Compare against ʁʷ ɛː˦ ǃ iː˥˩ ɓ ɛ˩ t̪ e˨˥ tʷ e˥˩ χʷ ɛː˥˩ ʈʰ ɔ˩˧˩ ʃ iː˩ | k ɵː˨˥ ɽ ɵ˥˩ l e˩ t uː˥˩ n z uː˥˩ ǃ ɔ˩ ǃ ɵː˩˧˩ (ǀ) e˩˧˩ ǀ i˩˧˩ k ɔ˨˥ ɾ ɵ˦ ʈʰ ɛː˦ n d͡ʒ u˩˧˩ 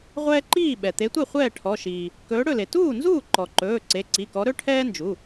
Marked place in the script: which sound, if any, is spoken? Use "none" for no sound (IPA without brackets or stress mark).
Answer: ǀ